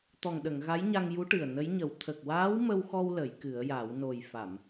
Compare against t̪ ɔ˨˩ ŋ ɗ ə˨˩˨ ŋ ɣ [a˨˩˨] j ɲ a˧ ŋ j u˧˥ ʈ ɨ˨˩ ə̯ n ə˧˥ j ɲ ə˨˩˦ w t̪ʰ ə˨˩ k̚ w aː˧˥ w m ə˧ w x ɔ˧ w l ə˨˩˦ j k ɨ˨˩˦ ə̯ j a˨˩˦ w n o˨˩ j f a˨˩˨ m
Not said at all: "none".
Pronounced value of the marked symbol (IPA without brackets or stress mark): a˧˥